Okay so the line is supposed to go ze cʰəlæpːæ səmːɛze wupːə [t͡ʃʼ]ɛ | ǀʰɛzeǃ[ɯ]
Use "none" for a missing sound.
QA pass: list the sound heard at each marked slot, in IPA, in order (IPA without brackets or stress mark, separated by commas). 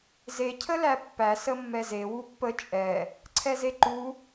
t͡ʃʼ, u